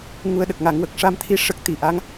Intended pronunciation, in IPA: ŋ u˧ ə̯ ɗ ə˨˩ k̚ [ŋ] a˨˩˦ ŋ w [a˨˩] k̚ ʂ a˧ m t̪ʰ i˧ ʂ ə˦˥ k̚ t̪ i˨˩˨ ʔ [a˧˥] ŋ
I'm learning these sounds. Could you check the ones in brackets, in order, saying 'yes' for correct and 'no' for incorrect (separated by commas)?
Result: yes, no, yes